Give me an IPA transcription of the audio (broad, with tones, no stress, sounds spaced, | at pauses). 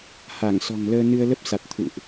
h a˧˩ ŋ s ɔ̤˨˩ ŋ l əː˧ n ɨ˧ ə̯ l ə˦˥ p̚ s a˨˩ t̚ t̪ʰ ṵ˧˨ ʔ